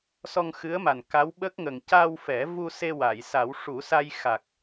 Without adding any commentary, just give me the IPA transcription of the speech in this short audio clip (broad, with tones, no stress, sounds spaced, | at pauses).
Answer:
s ɔ˧ ŋ x ɨ˧˥ ə̯ m a˨˩ n k a˧˥ w ɓ ə˦˥ k̚ ŋ ə˨˩ ŋ c a˧ w f ɛ˨˩˦ v u˧ s e˧ w a˨˩˨ j s a˨˩˦ w ʂ u˨˩˦ s a˧ j x a˨˩ k̚